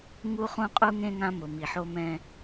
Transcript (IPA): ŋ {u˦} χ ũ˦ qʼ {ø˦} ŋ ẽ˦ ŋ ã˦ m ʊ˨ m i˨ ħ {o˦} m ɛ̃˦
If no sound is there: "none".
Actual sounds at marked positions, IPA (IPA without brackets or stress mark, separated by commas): u˦, u˦, o˦